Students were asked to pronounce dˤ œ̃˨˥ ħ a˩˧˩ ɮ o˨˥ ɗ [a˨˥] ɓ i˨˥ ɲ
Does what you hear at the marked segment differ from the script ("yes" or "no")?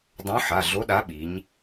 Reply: no